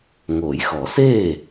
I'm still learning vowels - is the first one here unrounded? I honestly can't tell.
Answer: no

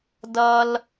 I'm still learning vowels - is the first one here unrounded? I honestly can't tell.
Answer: yes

